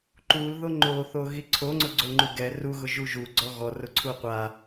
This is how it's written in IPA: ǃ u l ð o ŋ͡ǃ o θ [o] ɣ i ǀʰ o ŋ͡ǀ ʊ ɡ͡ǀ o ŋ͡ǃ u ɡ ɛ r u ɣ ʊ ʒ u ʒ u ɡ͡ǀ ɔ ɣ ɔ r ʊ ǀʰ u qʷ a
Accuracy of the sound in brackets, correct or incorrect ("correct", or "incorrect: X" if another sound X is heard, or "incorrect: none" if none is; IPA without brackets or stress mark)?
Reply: correct